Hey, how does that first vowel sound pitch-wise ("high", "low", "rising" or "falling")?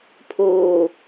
low